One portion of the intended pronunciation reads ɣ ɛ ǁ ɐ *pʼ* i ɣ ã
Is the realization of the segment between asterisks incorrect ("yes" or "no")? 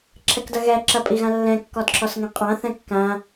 no